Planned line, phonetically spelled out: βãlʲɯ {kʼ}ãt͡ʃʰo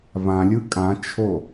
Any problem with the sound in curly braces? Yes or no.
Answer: no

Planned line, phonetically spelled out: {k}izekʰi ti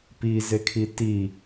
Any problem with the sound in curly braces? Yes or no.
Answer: yes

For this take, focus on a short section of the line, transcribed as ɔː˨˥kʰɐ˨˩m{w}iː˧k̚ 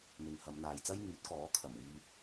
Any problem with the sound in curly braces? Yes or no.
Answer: no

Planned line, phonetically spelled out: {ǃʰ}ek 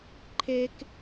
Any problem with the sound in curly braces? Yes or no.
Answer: no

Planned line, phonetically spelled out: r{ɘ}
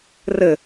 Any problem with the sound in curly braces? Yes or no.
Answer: no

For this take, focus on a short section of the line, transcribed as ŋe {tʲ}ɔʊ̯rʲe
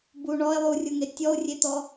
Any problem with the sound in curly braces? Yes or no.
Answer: no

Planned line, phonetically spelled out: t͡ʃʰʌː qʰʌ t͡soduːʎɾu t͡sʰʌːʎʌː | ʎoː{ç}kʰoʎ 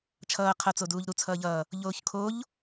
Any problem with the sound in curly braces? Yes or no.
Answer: no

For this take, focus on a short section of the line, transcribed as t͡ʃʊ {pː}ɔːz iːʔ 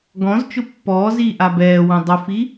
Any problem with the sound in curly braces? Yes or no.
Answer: no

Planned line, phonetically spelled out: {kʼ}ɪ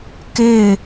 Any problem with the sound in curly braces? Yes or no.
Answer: yes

